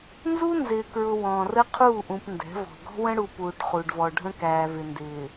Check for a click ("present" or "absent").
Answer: absent